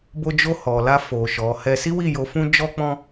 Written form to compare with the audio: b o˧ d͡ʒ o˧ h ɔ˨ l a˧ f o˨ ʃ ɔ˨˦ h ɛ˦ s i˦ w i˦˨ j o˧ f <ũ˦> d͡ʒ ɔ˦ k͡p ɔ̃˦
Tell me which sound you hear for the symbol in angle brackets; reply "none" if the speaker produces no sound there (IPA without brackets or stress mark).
ũ˦